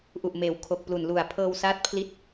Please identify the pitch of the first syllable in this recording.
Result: low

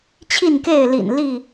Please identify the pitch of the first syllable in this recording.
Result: falling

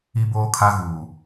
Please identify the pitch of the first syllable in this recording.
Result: high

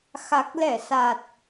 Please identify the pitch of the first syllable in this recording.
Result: low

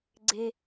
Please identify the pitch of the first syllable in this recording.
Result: high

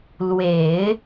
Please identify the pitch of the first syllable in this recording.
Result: low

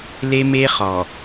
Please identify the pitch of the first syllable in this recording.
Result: high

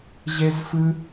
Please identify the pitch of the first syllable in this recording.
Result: high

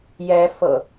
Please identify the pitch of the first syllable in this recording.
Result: rising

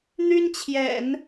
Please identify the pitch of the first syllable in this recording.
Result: high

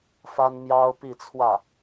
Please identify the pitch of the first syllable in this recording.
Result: high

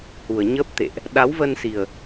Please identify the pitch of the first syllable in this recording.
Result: low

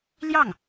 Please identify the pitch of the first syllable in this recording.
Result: falling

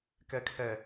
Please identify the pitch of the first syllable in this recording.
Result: low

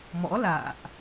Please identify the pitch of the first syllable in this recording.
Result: rising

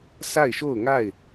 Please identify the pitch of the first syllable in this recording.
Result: falling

